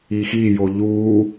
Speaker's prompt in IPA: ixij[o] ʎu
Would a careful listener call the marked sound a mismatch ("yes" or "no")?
no